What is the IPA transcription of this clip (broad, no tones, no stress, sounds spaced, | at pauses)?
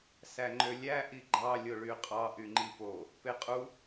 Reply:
s æ ŋ͡ǃ ø lʲ æ ʔ i ɡ͡ǃ ɑ lʲ o ɭ y qʼ ɑ ʔ y ŋ͡ǃ i p o | p e qʼ u